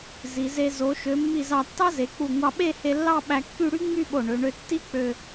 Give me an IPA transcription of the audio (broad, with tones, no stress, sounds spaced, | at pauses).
z i˩˧ z e˧ z o˩˧ ʃ ø˩˧ mː i˧˩ z ɑ˧˩ tː ɑ˥ z e˩˧ k͡p u˧˩ ŋʷ ɑ˧ ɓ e˥˧ h e˧ lː ɑ˥˧ ɓ æ˧ kː y˥˧ ɽ y˥ ŋ͡m y˥˧ ɓ o˧˩ ɳ ø˩˧ ɳ ø˧ tː i˥ k͡p ø˧